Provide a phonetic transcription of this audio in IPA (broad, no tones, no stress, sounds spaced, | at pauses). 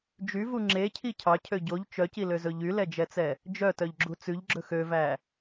d͡ʒ y v u ŋ͡ǁ e cʰ i cʰ ɑ cʰ ø ɟ o ʎ t͡ʃ œ c i l ø z ɵ ʎ y l ɛ d͡ʒ ɛ t͡s ɛ | d͡ʒ œ t œ ʎ ɡ͡ǁ u t͡s ʉ ʎ ɡ͡ǁ ɵ x ø v æ